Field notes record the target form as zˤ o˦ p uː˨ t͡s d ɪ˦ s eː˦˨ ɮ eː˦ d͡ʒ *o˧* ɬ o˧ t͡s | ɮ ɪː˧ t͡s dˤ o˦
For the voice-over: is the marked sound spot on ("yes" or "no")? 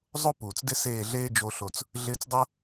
yes